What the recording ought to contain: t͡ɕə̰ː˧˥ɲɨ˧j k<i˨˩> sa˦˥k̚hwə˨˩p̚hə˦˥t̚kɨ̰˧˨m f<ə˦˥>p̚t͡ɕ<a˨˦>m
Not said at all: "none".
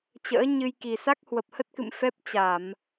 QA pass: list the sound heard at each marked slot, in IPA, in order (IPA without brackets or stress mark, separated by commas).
i˨˩, ɛ˦˥, a˧˩˨